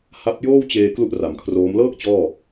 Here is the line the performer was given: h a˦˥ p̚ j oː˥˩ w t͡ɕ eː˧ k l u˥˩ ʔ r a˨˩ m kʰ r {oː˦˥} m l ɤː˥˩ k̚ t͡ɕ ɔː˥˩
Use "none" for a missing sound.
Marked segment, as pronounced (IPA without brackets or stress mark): oː˦˥